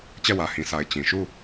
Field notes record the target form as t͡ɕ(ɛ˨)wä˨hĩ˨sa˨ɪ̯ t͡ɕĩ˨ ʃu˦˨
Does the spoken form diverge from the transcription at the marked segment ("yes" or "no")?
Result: yes